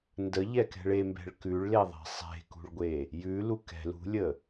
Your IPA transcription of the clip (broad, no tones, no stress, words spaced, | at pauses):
ndəʎɛkɛ̤ɭ embɛ̤ɭ kʉɭleðˤɛ̤ sˤe̤kṳɭɡʷe | jʉlu kɛ̤ lṳlʲə